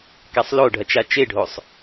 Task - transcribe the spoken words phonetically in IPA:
k a sˤ l o ɖʱ ɐ t͡ʃ a t͡ʃ e ɖʱ o sˤ

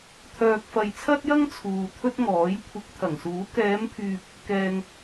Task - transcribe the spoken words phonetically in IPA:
t̪ʰ œː˨ k̚ f ɐ˨ j t͡sʰ ɐ˥ t̚ j ɐ˥ ŋ t͡sʰ uː˨ t̪ʰ ɵ˥ t̚ ŋ ɔː˨˥ j kʷʰ ɪ˨˥ k̚ t̪ʰ ɐ˨˩ ŋ s uː˨˥ k ɛː˨˧ m pʰ yː˨ p̚ | k ɛː˨ ŋ

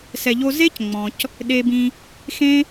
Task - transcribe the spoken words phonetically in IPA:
s ɛ˨ ʎ o˧ z e˦ c ŋ͡m ɔ̃˨ c | ɗ e˧ b ĩ˧ | x ẽ˦

